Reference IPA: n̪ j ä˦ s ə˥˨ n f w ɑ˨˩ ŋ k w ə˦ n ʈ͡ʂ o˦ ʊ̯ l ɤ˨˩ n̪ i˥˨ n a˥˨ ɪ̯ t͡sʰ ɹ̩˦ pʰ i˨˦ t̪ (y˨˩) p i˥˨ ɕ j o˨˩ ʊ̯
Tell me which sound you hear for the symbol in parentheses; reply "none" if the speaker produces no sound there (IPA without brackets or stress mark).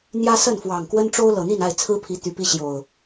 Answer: y˨˩